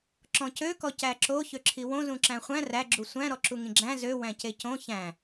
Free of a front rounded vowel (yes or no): no